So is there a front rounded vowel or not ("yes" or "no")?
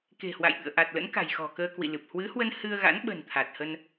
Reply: no